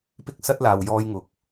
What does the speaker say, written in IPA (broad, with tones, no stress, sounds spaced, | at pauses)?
p ɪ˥ k̚ s ɐ˥ t̚ l aː˨ w j ɔː˥ j ŋ ʊ˨˥ k̚